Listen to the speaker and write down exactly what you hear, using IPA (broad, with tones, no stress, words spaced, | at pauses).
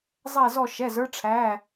zˤɛ˥˧zɔ˥˧ ʃɛ˧˥˧zə˞˥ʈ͡ʂʰæ˧˥˧